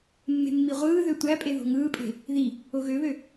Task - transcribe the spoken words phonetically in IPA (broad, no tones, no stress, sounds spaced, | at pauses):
mː e̤ mː i ʁʷ ɯː ð ø tʷ æ pʼ e ð o̤ ŋ ɯː pʼ e̤ | ð i | o ɣ ø β ø